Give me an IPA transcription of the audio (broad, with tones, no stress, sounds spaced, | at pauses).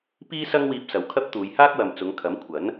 p iː˥ s ɐ˥ ŋ w iː˧ p̚ s ɐ˨ w kʰ ɐ˥ p̚ t̪ uː˨˧ j h aː˥ k̚ w ɐ˨ m t͡s ʊ˨˧ ŋ kʰ ɐ˨˥ m kʷʰ ɐ˨˥ n